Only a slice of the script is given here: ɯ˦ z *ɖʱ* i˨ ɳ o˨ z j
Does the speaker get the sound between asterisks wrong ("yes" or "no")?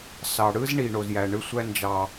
yes